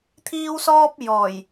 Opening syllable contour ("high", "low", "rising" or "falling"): high